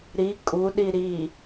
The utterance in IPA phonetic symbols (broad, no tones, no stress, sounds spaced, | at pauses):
ɾ i kʼ u ɗ i ɾ i